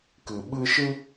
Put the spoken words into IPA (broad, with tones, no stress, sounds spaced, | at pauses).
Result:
k ɨ˨ ɓ ɨ˧ ʃ ɨ˦